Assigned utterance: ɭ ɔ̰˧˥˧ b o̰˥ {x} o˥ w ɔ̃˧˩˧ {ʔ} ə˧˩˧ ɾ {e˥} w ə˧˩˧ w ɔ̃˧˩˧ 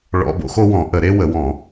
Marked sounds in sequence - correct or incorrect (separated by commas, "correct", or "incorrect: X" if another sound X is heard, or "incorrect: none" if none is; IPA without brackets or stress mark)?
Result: correct, correct, correct